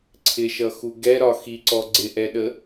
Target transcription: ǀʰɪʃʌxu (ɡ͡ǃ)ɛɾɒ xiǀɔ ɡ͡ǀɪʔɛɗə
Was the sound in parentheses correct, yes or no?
no